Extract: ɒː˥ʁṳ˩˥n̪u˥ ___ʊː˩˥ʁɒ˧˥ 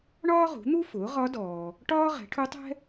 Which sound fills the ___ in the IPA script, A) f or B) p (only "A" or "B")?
A